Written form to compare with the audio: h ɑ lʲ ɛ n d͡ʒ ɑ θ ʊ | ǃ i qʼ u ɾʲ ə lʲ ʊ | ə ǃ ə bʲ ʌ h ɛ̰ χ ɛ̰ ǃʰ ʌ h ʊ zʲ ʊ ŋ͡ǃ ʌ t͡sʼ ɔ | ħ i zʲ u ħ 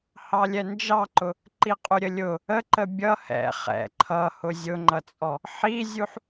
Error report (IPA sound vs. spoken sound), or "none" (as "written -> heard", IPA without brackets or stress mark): θ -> ǃ